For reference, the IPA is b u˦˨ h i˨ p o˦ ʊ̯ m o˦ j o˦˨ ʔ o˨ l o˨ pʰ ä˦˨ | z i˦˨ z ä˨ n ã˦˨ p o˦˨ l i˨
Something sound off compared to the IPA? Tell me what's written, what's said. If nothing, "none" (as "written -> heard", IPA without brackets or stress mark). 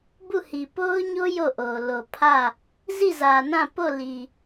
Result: m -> ɲ